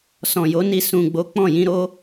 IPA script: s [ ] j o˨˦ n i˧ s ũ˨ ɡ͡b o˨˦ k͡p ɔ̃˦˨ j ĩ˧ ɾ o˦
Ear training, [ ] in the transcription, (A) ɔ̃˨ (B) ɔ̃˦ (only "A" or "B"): A